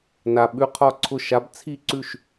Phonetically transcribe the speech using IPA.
n a˨ ɓ ʉ˧˥ qʰ ɒ˥˩ ǀʰ ʊ˥˩ ʃ a˧˥ b t͡sʰ i˥˧ ǀ ʉ˥˩ ʃ

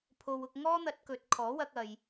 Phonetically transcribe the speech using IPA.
pʰ o˧ w ʊ˧ k̚ ŋ ɔː˥ n̪ ɐ˧ t̚ k ɵ˨˥ t̚ kʰ ɔː˨˥ w ɐ˧ k̚ ɐ˨ j

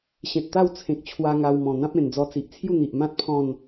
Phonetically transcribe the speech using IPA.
ɕ ẽ˨ t̚ t̪ a˥˧ w t͡sʰ ẽ˨ k̚ t͡ɕʰ w a˧ ŋ a˧ w m ɔ̃˨˩ n̪ ã˦ p̚ ẽ˨˩ n d͡z ɔ˧ t͡s i˨ ʔ t͡sʰ j u˥˧ n̪ i˨ ʔ m ã˦ t̚ pʰ ɔ̃˥˧ n

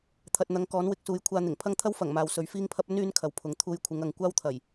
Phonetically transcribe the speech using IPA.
t̪ʰ ɐ˨ t̚ n̪ ɐ˨˥ ŋ k ɔː˨˥ n w ɪ˨˥ k̚ s uː˨˥ j kʷʰ aː˧ n̪ ɪ˨˩ ŋ pʰ ɐ˥ ŋ t̪ʰ ɐ˥ w f ɐ˨˩ ŋ m aː˨ w s ɵ˨˥ ɥ f iː˥ ŋ pʰ ɐ˥ p̚ ɵ˥ n yː˧ n kʰ ɐ˨˧ w pʰ ʊ˨˥ ŋ t̪ʰ uː˧ j kʷʰ ɪ˨˥ ŋ ɐ˨ ŋ kʷ aː˥ w t̪ʰ ɐ˨˩ j

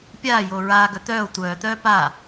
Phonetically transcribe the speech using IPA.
pʲ aː j oː ɹ aː ɡ œ t̪ œː o̯ tʷ œː t̪ œː p a

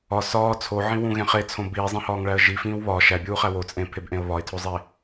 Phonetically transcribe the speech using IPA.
ɒ s ɒː t͡sʰ o ʕ ĩ w ũ ɣ ẽ χ e t͡sʰ õ b iː zˤ ẽ h ɒː ŋ ɭ æ ə̯ ʒ i f ĩː w β ɒ ʃ æ bʲ uː χ æ w o t͡sʼ ẽ pʰ e b ʔ ẽ ə̯ β ɒ ɪ̯ tʰ o zˤ i

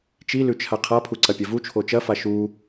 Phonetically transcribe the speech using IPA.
t͡ʃ i l ʉ t͡ʃʰ a qʰ a pʰ u ǀ ɐ pʲ ɐ v u t͡ʃʰ o t͡ʃ ɐ f a ʃ u

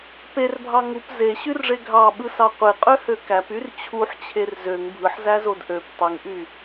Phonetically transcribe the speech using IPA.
p e r bʱ ɑ ŋ u p z e ɕ y r ʐ e ɡʱ ɑ ɓ ɯ s ɑ qʷ e qʼ ø h ø k æ p y r t͡ɕʰ u ħ t͡ɕʰ e r z ø ŋ bʱ ɯ ħ z æ z o d ʔ ø p tˤ i ŋ ʔ y

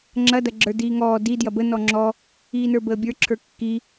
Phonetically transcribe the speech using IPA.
ŋ͡ǁ ɐ d ɐ ɡ͡ǁ ə˞ d iː ŋ ɔː d i d j ɐ b ə n ɔ ŋ͡ǁ ɔ | iː n ə˞ b əː bʲ ə˞ ǁʰ ə˞ kː i

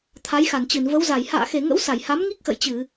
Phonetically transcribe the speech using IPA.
t̪ʰ a˨˦ j x a˧˩ n t͡ɕ ɨ˧˩ n v ə˨˦ w z a˧˩ j h a̰ː˧˨ x e˧˩ ŋ ə̰˧˥ w s a˧˩ j h a˨˦ m ŋ i˦˥ k̚ x ə̰˧˨ j t͡ɕ ɨ˧˩˨

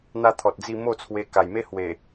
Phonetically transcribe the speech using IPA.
n̪ a˦ t̪ʰ ɔ˨ t̚ d͡z i˥˧ m o˥˧ t͡sʰ w e˧ k a˨˩ j m e˦ h w e˨˩

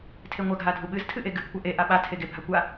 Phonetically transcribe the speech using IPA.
tʰ e ŋʷ a ɡ ɦ a dʱ u ɓ ɨ z tʰ ɨ ʔ e ɡ ɨ ɡ kʷ a ʔ e ʔ a ɓ a tʰ e ɡ e bʱ a kʷ a

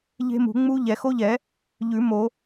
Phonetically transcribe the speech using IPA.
ʎ e̤˦˥ m ṳ˨˩˦ ŋ͡m u˦˥ ʎ ɛ˨˩˦ x o˦˥ ʎ ɛ˨˩˦ | ʎ ʉ˨˩˦ m o˨˩˦

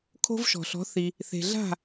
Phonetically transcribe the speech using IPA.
kʰ o̤˥ v ʃ ɔ̤˩ ɬ ɔ̤˩˥ θ i˩ | θ e̤˩ ɮ a̤˥˩

